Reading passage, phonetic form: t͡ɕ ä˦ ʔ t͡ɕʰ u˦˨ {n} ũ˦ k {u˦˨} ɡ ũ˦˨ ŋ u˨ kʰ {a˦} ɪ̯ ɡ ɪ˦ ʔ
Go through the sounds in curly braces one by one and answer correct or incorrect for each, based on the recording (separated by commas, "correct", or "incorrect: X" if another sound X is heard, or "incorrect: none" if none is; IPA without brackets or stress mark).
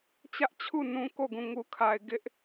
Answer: correct, incorrect: o˦˨, incorrect: a˨